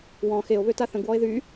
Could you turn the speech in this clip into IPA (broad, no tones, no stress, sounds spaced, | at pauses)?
w ɔ̃ x e o̯ β ø t a θ ə̃ ɡ w ɔ e̯ ð y